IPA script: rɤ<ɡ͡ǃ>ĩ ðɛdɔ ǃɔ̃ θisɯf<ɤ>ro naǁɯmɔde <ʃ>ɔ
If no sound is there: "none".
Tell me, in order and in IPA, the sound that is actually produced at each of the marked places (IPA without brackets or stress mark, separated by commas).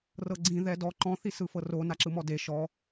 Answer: ɡ͡ǀ, ɤ, ʃ